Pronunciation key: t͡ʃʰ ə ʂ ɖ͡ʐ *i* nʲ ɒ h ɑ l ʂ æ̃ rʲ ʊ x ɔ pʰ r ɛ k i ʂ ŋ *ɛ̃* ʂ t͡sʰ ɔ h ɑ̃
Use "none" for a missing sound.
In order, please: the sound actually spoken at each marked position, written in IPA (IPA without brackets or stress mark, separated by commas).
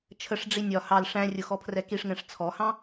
i, ɛ̃